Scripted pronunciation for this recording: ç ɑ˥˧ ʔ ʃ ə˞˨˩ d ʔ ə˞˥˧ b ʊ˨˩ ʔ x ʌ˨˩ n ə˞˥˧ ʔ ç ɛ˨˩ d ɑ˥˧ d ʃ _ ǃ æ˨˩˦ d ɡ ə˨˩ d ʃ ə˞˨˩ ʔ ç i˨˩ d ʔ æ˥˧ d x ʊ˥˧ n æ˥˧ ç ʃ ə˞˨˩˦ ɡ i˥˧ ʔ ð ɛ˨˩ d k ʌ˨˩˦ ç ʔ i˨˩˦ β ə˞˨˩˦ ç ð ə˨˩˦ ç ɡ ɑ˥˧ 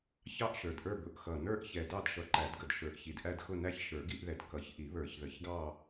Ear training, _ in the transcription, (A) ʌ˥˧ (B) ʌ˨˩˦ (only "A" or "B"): B